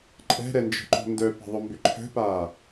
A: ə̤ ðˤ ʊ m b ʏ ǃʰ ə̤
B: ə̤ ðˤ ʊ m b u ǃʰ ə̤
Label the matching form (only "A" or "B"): A